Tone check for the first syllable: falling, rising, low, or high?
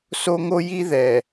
high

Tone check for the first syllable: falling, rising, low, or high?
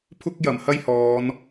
high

